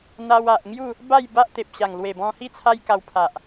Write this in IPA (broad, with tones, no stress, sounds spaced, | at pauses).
n̪ a˧ w a˨ ʔ ŋ j u˥˧ | b a˥˧ j b a˦ ʔ t̪ e˨ p̚ ɕ a˨˩ ŋ l w e˨˩ b ɔ̃˧ h i˥˧ t͡sʰ a˦ j k a˧ w pʰ a˨ ʔ